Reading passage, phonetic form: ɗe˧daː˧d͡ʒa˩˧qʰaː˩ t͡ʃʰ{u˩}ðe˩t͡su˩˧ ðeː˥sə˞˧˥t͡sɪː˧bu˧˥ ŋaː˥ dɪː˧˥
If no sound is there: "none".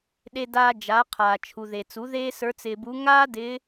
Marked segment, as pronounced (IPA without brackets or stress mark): u˩